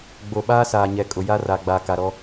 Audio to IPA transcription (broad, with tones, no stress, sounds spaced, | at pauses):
ɡ͡b o˨ ɓ aː˦ s aː˨ ɲ ɛ˨ kʼ ʊ˨ j a˦ r a˨ ɡ͡b a˨ k a˨ ɾ ɔ˦